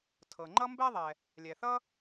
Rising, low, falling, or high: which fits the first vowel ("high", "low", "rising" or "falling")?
low